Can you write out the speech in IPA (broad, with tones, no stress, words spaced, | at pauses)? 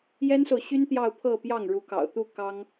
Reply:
jɛ˥nso˨ʊ̯ɕy˥n t̪jɑ˥˧ʊ̯pʰɤ˥˧pjɑ˥˩ŋ ɻu˧˥kɑ̰˨˩ʊ̯t̪u˥˩ kɑ˥ŋ